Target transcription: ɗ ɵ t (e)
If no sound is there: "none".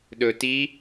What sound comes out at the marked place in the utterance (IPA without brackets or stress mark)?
i